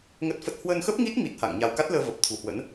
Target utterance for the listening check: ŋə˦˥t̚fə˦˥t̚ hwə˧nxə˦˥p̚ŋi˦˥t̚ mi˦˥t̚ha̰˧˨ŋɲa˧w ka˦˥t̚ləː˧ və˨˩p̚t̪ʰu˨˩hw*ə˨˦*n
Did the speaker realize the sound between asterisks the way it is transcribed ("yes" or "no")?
no